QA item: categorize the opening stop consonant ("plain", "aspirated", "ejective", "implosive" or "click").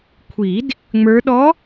aspirated